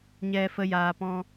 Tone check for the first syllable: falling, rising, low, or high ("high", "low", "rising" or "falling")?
high